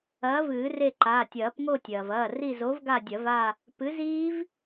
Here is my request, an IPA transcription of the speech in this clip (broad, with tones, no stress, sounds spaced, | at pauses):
ɐː˨˥ v ɨː˨˩˦ r e˦˨ ǃ aː˩˧˩ tʲ ɐː˨˩˦ p ŋ o˦˨ tʲ ɐː˩ v ɐː˩˧˩ r i˦˨ z o˨˥ v ɡ a˦˨ dʲ ɐ˨˩˦ v a˦˨ | p ɨ˨˥ z iː˦˥ v